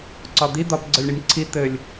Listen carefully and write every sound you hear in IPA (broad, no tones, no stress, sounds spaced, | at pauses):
ǀ ɒ d̪ i d̪ ɒ p ɡ͡ǀ ɤ lʲ ɳ ɘ nʲ ǀʰ i t̪ ɘ lʲ